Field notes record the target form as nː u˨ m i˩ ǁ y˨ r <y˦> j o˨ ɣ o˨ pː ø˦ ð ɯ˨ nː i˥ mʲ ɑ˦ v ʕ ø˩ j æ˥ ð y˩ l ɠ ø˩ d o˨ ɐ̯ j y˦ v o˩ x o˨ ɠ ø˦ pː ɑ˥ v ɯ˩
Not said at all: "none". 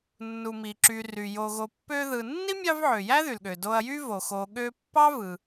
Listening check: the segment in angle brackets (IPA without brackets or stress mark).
y˩